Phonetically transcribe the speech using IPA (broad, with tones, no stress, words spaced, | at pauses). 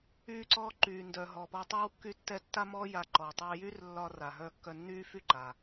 yː˧ǀɔː˧ ǃyː˩ ndœ˩ ɦɔ˩pɔ˧ tˤyː˥wkːy˥tːɛ˥ tːa˥mɔː˥ ja˧ ǃɔ˩ tˤɛː˧jyː˥rlːɒː˧ ra˩ɦœ˧ kːœ˧nːyː˥fy˥ ǃa˩